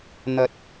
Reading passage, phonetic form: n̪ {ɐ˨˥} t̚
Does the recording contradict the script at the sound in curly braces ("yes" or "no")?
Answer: no